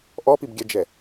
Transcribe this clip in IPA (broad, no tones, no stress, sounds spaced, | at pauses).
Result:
ʔ ɔ p i b ɡʲ ɛ d͡ʒ ɛ